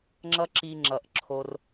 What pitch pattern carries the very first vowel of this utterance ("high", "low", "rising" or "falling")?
high